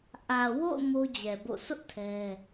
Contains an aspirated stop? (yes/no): yes